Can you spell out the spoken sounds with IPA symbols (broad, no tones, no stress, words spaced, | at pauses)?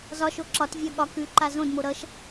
zɒʃo ǁɒt vʲʌ ɠɒ kʉ ǃazõdmo ɾʌʃ